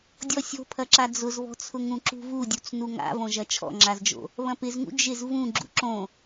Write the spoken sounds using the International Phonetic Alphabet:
dʲ ɔ sʲ o̤ pʰ ɐ ǁ a d͡z ʊ z β ɔ̤ t͡sʰ ʊ ŋ ũ ǁ ṳ v u dʲ u t͡s n u ŋ a̰ v õ ʒ ɐ t͡ʃʰ ɔ̰ ŋ͡ǁ a z d͡ʒ o̰ | β ɐ̃ p ɪ z ŋ ṵ d͡ʒ ɪ z v ũ ɡ͡ǁ ṵ ǁ õ

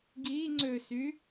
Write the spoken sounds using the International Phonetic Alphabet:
ɡ i ŋ͡ǀ ø s y

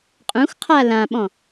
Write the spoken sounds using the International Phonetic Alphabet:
qʼ ũ x qʰ a l ã ɓ ɔ̃

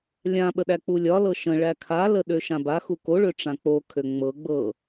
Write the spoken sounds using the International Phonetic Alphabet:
lʲ ã ɓ ə ɗ æ k͡p u lʲ ɒ l ɤ ʃ ə̃ ɭ æ kʰ a l ə ɗ ø ʃ ã b a x u k o ɭ ø ʈ͡ʂ ã k͡p o kʰ ø ŋ͡m ɤ ɡ͡b ɤ

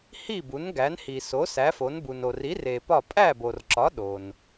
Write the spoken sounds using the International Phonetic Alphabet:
h i˥˨ b u˨˥ n ɡ æ˨˥ n h i˨ s o˨˥ s æ˨˥ f o˨˥ n b u˨ n o˨ r i˨˥ r e˨ p ɒ˥˨ pʼ æ˥˨ b o˨ r ǁ ɒ˨˥ ɗ o˨ n

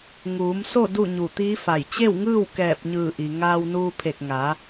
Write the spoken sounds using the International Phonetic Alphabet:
ŋ uː˩˧ m s o˥˨ d u˥˨ ɲ u˧˩ t̪ iː˧˥ f a˧˩ j t͡ɕ e˥˨ w ŋ ɯː˥˨ w k ɛː˧˩ p̚ ɲ ɯː˧˩ ʔ i˩ ŋ aː˧ w n uː˧ pʰ e˧˩ k̚ ŋ a˩˧

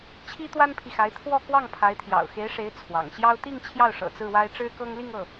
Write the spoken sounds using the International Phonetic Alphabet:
t͡ɕʰ i˥ t̪ w a˥ n pʰ i˨ x a˧˥ ɪ̯ t̪ʰ w ɔ˥˧ k w ɑ˥˩ ŋ pʰ a˧˥ ɪ̯ t̪ʰ j ɑ̰˨˩ ʊ̯ x e˧˥ ɪ̯ ʂ e˧˥ ɪ̯ t͡sʰ w ɑ̰˨˩ ŋ ɕ j ɑ˥ ʊ̯ t̪ i˥˧ ŋ t͡ɕʰ j ɑ˥˩ ʊ̯ ʂ ɤ̰˨˩ t͡s ɹ̩˥˩ w a˥ ɪ̯ ʈ͡ʂ ɻ̩˥ k ɤ˥ ŋ l i˥˧ ŋ ɤ˥˩

